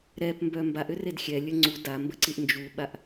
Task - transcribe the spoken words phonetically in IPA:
ɾɛpmbœ mbaʔʏred xʲɛlʲə ŋ͡ǀu dambəǀiʔ nd͡ʒuɓaʔ

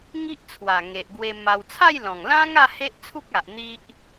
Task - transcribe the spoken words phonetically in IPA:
ŋi˦ʔt͡sʰwa˨˩ŋe˨ʔɡwe˧ ma˧w t͡sʰa˥˧jlɔ̃˨˩ŋlã˦ŋa˥˧ he˦ʔt͡sʰu˦k̚a˨ʔ n̪i˦ʔ

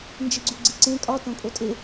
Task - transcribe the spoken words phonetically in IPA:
nd͡ʒiɡ͡ǀuɡ͡ǀiǀẽ kʼɒ tõkʼotʼe

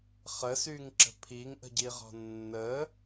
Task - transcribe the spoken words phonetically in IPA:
χəsyŋǁə̤ pʰiŋʔə̤ɟiʁɔ̤ nːə

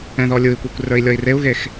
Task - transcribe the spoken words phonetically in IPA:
ɛ̃ðɔlʲui̯kʷekʷ rə˞i̯lʲɔi̯reu̯ɣex

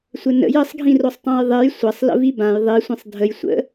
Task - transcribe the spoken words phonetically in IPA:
sʷɘnə̰j ɘsˤɡʱĩrosˤ tˤãjðˤej sʷɐsˤ lə̰vibãj ðˤisʷĩsˤ dʱəj sʷə̰

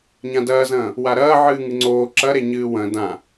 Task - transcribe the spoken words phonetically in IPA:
ɲãdɐːzɐ̃ː | waɾɐː ʕɨːŋɨŋ͡ǀoː ǁɐ ɾeɲɨːwɐ̃ dã

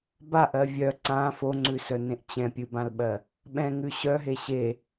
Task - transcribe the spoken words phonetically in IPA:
baʔɜ vʲœ ǀã foŋ͡ǀʉsœnẽʔ t͡ɕɛ̃pʲɨbãlɓɜ | ɓɛ̃ŋʉ ɕœɦe ɕe

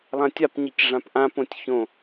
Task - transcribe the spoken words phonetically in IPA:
lˠãtʲapɲic ʐãpʔãp õtʲçõ

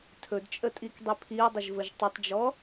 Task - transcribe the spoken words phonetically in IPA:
tʰɵdt͡ʃʼətʼikdˤi pʰiɐ̯dˤɪʒvəʒ tˤətˤd͡ʒɔ

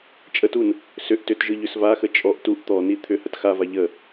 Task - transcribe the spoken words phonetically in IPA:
t͡ʃʼətun | sʏʔ tʏtʒɯ ʎʏsvaxə t͡ʃʼɔʔ tuʔ t̪ɔni t̪ʰʏ hətxava ʎə

